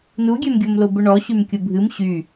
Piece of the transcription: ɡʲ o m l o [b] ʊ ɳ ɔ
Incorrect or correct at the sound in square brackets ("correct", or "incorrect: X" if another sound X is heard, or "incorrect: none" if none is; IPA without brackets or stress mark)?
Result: correct